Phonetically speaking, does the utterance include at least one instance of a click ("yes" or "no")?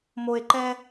yes